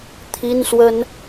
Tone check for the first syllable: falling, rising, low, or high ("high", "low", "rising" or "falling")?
high